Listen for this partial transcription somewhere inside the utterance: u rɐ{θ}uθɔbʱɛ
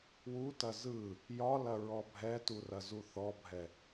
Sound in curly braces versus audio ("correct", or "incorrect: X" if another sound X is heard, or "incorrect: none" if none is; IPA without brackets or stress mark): incorrect: z